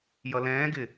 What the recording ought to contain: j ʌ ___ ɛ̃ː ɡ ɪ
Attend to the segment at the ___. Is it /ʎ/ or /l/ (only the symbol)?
l